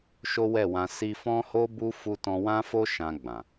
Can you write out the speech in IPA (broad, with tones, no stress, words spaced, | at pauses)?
ʃo˦wɛ˦˨wã˧ si˧fɔ̃˦ho˦ bu˦ fu˧tɔ̃˧wã˦fo˦ ʃã˧ ɡ͡bã˨